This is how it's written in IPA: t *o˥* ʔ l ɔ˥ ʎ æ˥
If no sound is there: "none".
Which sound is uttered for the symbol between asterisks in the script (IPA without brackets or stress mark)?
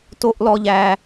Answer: o˥